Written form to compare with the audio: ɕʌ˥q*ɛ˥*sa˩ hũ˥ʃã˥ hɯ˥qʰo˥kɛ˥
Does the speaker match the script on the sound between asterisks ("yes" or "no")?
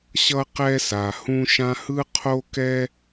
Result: yes